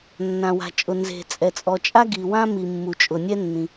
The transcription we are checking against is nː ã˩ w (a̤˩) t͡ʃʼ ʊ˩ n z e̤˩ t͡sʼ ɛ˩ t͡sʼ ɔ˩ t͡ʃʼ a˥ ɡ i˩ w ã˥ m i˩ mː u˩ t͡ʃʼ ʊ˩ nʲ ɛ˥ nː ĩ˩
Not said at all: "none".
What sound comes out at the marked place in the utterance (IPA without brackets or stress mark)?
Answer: a̤˩